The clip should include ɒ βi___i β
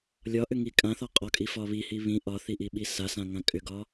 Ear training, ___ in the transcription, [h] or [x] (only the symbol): h